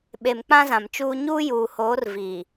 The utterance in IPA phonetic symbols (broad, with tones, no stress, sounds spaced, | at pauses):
ɓ e˨ m k͡p ã˦ z ã˨ m t͡ʃ uː˦ ɲ uː˦ j uː˨ h oː˨˦ r v iː˨